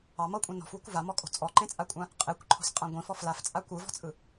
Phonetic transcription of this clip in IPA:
ɑ mɤkʷʼĩ nɔ̤fwo̤kʷ vamɔkʼo̤ t͡sʼɔǃẽt͡sʼakʷʼã | qʼekʷǃʰɔ̤sqʼã ɡʷĩfɔ flaft͡sʼa kʷɯvɔ̤t͡sʼɯ

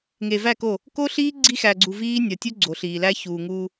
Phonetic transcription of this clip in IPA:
ŋe˨væ˦˨ko˦˨ | ko˦ɬiː˦ ɡ͡ǀi˦xæ˨ɡ͡ǀu˨viː˦ nʲɒ˨tʲu˦ ɡ͡ǀo˨ɬiː˨læ˦ çuː˨ŋuː˦

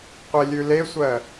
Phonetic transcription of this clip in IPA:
qʷelʲʉlesʷɜ

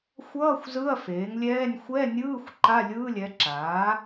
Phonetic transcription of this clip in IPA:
xʷʌː˧˥˧xʷ zɯ˧˥˧ɐ̯feː˩˥ŋlʲɛː˧˥˧nʲ xʷɛ˧˥˧nʲɯː˧˥˧xʷ ǃa˧˥˧lʲɯː˧˥˧lʲɛ˩˥ǁaː˩˥

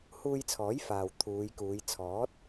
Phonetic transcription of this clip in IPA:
huː˧jt͡sʰɔː˨˥j faː˨w t̪ʰuː˨˧jkuː˨˧j t͡sʰɔː˨˥t̚

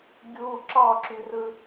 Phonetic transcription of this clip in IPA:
ɡʲu ǁɑǁyrɯ

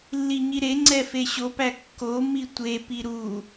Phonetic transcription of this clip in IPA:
lːiɲiɾeŋ͡ǀɛ feɕopæ kːomi tʷepi ɾu

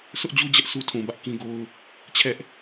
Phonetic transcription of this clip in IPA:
sʰʊ˦ʔd͡ʑu˦d͡ʑɛ˦ʔ su˦tʰũ˨bä˦ʔ kĩ˦ɡo˦ʊ̯ | t͡ɕʰɛ˦ʔ

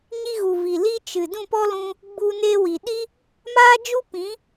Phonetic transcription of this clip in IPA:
ɲi˧ɣu˨vi˨ li˦ t͡ʃɨ˨ dũ˦˨pɔ˦lũ˧ | ɡ͡bu˧ ne˧wi˨ ɗi˦ | maː˦d͡ʒu˦pĩ˨˦

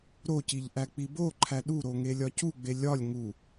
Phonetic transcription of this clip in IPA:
ɾociʎʔæ k͡piboǃʰæ ɗuɾoŋe lʲɒcuɡ͡be lʲɒlʲ ŋu

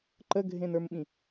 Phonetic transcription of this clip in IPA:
ǃəɡʱẽnə˞mɓĩ

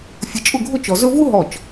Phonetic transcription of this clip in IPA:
fʲə˧t͡ʃʼʊ˥˧ɡʱʊ˥˧ t͡ʃɔ˧zɵ˥ vu˥ɦɔ˧˩t͡ʃ

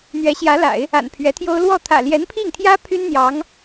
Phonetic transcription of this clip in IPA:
n̪ɥɛ˧˥ɕjä˧˥la̰˨˩˦ɪ̯ | a̰˨˩npʰɥɛ˧˥t̪ʰjo˥ʊ̯ lwɔ˥˩t̪ʰä̰˨˩ ljɛ˧˥npʰi˥˩ŋt̪ʰjä˥ pʰy˥n n̪jɑ˧˥ŋ

